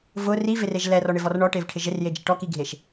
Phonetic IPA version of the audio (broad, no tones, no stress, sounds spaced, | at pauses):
v ʊ r i v ɪ r e ʒ l ɛ r ɔ ɳ ɪ v ɔ r ɳ ɔ ʈ e v ʈʰ ɪ ʒ ɪ r j e d͡ʒ ɪ ʈ ɔ k i ɡʱ e ʃ